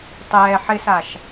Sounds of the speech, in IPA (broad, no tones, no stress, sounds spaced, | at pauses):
tˤ ɛː ħ ɪ s a ʃ